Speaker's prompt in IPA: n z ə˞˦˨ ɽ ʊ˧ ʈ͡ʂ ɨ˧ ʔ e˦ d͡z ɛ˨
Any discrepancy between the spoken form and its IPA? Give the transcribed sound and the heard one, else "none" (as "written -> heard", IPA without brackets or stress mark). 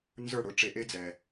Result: ɨ˧ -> e˧